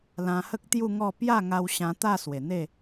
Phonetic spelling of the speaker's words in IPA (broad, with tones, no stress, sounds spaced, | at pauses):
l ã˧ h ə˦ k̚ t̪ j u˥˧ ŋ ɔ˥˧ p j a˥˧ ŋ a˧ w ɕ ã˧ t̪ a˥˧ s w e˨˩ n̪ e˥˧